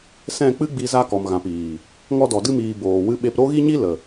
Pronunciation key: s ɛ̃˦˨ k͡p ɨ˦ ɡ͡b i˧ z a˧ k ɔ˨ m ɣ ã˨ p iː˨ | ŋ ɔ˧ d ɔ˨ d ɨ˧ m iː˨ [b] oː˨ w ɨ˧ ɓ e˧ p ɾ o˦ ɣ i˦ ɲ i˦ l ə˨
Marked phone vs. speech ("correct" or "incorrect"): correct